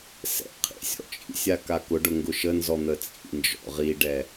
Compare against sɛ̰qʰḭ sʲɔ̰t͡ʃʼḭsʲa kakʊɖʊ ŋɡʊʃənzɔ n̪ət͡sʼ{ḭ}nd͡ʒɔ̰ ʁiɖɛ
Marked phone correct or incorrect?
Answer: correct